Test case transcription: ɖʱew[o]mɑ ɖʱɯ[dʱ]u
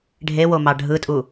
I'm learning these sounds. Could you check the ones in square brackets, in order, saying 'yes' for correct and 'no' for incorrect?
yes, no

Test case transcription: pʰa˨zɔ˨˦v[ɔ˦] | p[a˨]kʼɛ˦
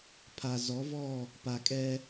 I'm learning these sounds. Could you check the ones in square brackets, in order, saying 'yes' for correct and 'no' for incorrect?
no, yes

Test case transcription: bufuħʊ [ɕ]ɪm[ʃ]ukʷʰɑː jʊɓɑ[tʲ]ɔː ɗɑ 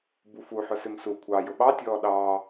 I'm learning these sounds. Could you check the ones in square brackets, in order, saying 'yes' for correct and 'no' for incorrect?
no, no, yes

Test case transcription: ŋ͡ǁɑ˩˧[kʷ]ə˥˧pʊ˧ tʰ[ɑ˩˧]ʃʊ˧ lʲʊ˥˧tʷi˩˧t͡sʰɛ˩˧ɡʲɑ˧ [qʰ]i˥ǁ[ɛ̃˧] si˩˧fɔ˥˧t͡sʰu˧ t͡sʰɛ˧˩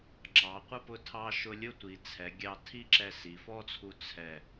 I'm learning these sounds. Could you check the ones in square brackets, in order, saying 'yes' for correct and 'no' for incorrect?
no, no, no, no

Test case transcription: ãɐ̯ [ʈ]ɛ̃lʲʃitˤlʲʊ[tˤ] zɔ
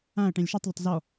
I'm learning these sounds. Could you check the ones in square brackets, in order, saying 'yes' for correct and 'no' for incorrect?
yes, yes

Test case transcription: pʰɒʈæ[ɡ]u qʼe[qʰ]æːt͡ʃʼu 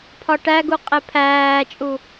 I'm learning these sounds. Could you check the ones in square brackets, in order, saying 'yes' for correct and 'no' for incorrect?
yes, no

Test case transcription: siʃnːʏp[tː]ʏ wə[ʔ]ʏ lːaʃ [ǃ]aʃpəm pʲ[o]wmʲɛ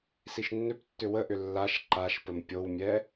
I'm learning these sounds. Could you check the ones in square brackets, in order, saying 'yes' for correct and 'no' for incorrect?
yes, yes, yes, yes

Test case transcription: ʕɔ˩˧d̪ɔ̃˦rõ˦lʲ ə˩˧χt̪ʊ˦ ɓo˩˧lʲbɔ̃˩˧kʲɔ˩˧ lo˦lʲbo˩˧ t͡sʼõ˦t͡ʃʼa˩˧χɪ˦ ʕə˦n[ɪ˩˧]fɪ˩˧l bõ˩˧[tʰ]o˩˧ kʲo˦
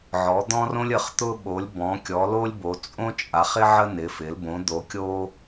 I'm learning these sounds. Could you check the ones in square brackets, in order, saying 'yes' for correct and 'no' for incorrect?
yes, no

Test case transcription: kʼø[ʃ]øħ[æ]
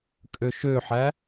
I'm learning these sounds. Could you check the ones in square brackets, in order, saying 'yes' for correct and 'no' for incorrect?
yes, yes

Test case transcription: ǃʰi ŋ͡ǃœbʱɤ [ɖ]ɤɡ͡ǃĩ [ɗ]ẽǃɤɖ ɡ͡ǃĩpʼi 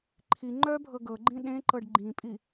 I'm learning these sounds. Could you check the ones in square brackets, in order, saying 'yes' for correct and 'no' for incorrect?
no, yes

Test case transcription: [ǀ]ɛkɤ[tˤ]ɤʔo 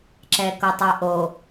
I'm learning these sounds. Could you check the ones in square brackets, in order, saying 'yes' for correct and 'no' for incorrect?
no, yes

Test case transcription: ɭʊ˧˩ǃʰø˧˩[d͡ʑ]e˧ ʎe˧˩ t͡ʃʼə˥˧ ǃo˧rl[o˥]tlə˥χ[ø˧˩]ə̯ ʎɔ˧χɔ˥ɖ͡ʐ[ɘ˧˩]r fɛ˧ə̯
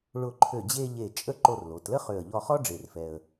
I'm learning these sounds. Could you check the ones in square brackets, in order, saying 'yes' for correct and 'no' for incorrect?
yes, no, yes, no

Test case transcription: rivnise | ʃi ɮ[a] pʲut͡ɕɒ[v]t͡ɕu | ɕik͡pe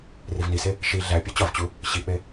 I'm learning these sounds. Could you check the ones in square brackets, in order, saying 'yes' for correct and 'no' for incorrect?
no, yes

